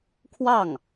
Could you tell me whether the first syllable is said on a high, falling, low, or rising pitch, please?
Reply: falling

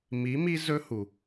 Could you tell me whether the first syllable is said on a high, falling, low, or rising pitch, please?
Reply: rising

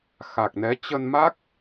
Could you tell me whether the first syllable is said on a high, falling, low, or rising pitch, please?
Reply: low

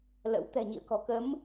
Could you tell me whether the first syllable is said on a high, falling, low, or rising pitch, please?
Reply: rising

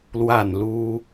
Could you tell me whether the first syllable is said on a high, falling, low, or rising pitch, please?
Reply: falling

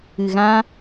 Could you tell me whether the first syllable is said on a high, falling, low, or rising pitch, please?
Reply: low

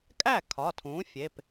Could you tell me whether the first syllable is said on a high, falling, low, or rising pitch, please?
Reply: falling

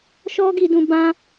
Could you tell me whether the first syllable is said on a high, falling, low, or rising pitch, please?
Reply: high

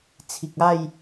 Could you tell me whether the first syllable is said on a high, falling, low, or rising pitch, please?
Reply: low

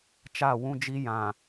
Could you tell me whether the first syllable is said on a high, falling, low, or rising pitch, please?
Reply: falling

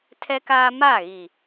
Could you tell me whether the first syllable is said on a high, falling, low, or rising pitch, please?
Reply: high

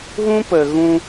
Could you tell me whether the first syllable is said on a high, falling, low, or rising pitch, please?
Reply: high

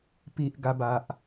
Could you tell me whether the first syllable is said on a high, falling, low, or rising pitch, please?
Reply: low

